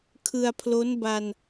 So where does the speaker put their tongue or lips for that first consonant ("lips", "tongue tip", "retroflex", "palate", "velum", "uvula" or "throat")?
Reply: velum